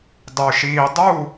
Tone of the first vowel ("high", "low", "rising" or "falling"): low